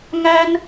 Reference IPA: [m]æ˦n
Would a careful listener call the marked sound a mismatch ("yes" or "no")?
yes